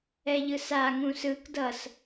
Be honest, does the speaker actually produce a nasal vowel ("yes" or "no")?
yes